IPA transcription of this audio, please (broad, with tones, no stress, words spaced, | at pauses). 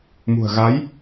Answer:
mṳ˨˩ə̯ɣa˨˦j